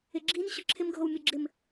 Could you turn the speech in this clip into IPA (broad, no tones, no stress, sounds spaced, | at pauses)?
ɪ ɡ͡ǁ i n ɕ ʊ ǁʰ ɪ m ɡʱ o w mʲ o ɡ͡ǁ ɪ m